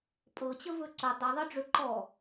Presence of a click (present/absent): present